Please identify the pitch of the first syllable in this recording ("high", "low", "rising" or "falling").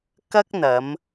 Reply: high